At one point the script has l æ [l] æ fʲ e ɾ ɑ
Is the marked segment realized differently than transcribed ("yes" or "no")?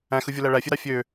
yes